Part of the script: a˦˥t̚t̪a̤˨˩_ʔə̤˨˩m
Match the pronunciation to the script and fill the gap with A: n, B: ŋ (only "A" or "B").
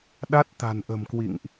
A